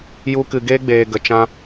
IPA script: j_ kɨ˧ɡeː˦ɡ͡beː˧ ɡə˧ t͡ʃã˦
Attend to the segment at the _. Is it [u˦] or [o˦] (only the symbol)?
u˦